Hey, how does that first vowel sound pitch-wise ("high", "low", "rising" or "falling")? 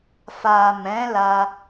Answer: low